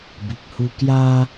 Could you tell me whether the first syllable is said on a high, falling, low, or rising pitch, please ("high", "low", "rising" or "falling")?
low